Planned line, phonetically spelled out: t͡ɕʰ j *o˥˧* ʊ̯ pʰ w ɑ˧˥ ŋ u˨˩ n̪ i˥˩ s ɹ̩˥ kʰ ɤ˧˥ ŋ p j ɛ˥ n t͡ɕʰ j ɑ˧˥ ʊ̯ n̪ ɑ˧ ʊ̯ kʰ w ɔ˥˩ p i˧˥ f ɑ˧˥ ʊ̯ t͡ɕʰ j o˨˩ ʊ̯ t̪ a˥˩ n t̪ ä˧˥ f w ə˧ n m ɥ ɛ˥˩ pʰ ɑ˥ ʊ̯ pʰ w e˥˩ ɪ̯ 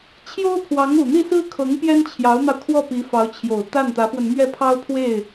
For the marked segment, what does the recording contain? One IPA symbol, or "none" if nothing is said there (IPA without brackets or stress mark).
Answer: o˥